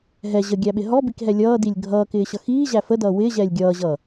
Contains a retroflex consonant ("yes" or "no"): no